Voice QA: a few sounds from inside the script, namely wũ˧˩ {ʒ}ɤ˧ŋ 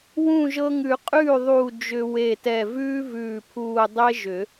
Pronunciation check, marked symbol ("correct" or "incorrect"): correct